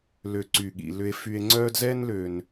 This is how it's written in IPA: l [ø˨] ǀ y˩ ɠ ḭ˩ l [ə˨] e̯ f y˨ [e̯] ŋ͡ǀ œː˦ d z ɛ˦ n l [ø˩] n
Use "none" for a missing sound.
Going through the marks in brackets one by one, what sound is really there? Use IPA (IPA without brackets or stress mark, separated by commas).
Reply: ø˨, ʏ˨, e̯, ø˩